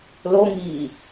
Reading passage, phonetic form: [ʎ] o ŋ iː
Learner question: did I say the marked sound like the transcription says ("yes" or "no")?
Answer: no